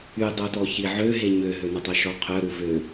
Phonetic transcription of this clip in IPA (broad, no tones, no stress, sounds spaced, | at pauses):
y dˤ o t ɔ ç i ʕ ø ɦ e ɲ ø ɦ ø n ə tˤ œ ʃ ɔ qʰ œ ɾ u v ø